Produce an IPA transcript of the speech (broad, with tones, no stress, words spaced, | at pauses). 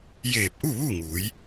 jeː˧˩p̚ʔu˥˨ʋu˥˨ŋuː˩˧j